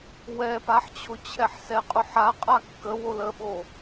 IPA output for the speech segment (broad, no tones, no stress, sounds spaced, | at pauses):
w ɛ p a ħ t͡ɕʰ ʊ t͡ɕʰ ɛ ħ s ɛ qʼ ʊ ħ a qʼ a kː ə w o l ə ɓ o